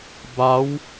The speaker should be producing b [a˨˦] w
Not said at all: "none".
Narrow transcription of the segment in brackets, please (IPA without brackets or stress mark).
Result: a˨˦